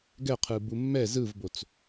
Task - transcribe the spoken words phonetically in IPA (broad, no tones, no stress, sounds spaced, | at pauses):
ɡ ɛ qʰ ɯ b u mː ɛ z ɯ v b o t͡s